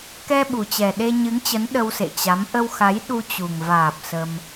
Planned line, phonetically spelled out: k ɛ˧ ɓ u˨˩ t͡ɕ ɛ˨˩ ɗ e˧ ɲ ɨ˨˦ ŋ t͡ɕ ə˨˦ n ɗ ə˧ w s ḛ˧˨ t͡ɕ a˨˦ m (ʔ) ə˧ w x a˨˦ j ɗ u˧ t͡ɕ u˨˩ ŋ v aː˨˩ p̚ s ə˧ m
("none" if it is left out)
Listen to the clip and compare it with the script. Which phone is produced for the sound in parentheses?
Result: ʔ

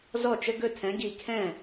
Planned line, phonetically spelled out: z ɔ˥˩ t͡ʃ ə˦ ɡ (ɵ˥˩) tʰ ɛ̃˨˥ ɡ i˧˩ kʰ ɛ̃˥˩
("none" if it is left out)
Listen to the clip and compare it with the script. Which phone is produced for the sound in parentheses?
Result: ɵ˥˩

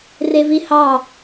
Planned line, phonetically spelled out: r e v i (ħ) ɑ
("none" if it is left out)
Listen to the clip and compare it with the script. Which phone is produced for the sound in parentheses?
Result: h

